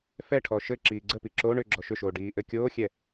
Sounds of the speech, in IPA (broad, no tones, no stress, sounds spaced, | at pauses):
f ɛ ʈʰ ɔ ʃ ɘ ǁ iː ɡ͡ǀ ə p i ǁ o ɳ ʏ ɡ͡ǁ ɔ ʃ ʏ ʃ oː ɖ iː ʔ ɘ kʲ oː xʲ ɛ